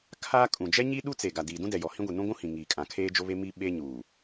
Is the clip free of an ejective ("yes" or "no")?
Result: no